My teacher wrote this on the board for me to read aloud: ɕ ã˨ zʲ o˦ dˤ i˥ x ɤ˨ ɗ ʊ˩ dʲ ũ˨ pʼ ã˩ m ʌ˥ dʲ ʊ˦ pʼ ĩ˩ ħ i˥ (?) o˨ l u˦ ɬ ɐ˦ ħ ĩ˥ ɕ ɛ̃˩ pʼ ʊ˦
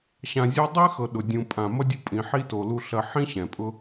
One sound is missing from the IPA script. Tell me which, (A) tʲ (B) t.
B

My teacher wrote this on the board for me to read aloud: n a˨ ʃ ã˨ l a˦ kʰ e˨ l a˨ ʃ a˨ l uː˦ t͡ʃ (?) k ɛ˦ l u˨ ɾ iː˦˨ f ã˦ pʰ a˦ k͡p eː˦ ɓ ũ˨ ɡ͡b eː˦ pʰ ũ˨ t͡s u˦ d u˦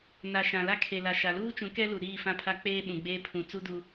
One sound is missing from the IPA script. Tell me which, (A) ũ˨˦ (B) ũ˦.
A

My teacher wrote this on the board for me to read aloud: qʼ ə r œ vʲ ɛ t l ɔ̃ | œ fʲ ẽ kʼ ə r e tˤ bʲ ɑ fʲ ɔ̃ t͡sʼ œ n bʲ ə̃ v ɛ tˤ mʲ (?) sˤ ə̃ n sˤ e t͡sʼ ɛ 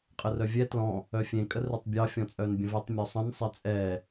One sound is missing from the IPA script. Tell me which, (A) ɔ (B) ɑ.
A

